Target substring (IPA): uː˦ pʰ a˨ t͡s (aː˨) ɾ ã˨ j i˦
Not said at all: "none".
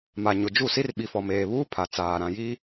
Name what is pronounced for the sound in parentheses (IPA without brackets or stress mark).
aː˨